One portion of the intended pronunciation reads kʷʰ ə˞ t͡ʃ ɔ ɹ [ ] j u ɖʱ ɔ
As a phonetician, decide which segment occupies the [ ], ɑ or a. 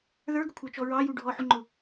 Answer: ɑ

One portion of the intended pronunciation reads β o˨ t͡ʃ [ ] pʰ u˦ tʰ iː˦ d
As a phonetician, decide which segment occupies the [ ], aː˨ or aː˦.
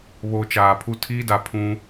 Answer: aː˨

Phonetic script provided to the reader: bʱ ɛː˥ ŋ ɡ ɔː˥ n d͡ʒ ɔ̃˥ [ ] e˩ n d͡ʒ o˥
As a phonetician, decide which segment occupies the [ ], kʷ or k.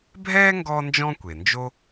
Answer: kʷ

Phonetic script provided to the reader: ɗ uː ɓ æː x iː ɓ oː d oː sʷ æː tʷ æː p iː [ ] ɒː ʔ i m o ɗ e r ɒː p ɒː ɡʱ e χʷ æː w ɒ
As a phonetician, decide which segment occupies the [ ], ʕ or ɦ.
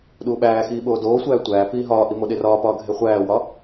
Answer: ɦ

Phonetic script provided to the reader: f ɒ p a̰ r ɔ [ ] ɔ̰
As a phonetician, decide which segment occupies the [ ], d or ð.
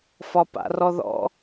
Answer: ð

